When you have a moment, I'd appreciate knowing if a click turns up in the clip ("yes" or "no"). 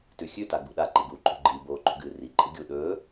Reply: yes